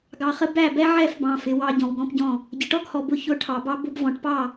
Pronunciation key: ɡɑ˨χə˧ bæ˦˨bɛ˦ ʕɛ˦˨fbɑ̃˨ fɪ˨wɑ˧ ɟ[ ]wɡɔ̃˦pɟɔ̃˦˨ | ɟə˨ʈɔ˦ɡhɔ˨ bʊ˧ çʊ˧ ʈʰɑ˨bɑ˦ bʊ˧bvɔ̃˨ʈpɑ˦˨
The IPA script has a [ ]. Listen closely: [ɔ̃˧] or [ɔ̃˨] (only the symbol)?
ɔ̃˨